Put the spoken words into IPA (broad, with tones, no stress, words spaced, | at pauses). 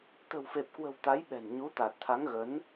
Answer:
t̪ə̤˨˩wfe˨˩p̚kwə̤˨˩w t̪a˨˦jɓɛ̤˨˩nɲu˨˦ t̪a˨˩t̚t̪ʰa˨˦ŋɣə˨˦n